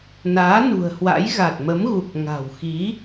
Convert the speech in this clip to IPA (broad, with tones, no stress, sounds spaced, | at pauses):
n aː˨˦ n ṳ˨˩ ə̯ h w a̰˧˥ j ɣ a˨˩ t̚ m ə˨˦ m ɣ u˨˩ k̚ ŋ a̤˨˩ w x i˨˦